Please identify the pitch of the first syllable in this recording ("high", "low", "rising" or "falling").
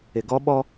low